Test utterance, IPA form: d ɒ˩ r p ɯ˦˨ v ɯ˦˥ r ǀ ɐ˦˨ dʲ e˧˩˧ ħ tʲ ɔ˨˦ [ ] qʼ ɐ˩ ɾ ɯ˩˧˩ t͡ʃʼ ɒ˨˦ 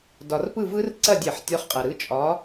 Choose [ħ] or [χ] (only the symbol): χ